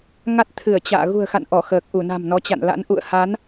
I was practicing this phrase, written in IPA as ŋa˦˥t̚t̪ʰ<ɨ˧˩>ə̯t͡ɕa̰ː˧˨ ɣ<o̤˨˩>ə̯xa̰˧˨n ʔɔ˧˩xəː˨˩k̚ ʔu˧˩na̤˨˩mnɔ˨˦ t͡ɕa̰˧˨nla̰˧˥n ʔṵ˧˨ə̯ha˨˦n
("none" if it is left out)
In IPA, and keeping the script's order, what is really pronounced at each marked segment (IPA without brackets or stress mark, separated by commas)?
ɨ˧˩, ṳ˨˩